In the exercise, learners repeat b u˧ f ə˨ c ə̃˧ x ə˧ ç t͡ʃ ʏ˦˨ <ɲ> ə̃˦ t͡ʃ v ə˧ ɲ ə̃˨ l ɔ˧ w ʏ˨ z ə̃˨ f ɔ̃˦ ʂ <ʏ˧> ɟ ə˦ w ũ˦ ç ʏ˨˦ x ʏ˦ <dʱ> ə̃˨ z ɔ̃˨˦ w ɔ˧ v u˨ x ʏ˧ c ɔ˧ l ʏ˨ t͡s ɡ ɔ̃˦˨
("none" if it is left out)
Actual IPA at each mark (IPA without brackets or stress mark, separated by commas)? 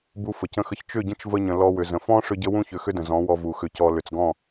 ɟ, ʏ˦, d